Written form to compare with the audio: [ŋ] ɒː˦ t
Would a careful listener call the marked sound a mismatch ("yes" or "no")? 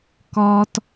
yes